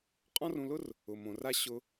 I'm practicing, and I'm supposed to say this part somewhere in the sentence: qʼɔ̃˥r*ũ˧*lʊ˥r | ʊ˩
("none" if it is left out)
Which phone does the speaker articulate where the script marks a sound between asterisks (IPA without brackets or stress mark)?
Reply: ũ˧